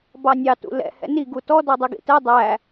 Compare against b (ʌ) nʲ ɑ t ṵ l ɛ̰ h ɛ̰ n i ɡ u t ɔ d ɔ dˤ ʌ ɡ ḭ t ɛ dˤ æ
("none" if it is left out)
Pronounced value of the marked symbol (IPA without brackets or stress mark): ɑ